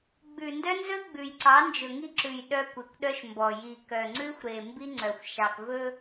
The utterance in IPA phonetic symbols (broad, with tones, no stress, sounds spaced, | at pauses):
ɡ͡b ʉ˨ n d œ˦ n z ɵ˦ ɡ͡b ʉ˨ j ǀ ɑ˨˦ n d͡ʒ ɵ˨ ŋ i˦ ǁ ʉ˨ j ɗ œ˦ kʷ e˨ kʷ ɗ œ˦ ʃ m b ɔ˨ j i˨ k œ˨ ŋ͡ǀ ʉ˦ xʷ ɾ e˨ m b i˦ ŋ͡ǀ œ˨ xʷ ʃ ɑ˨ k v ɵ˦